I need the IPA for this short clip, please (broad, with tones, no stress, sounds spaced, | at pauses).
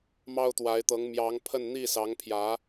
m ɑ˥ ʊ̯ t̪ w a˧˥ ɪ̯ t̪ ɤ˧˥ ŋ m j ɑ˧˥ ŋ pʰ ə˥˧ n n̪ i˥˩ s ɑ˧˥ ŋ pʰ j ä˧˥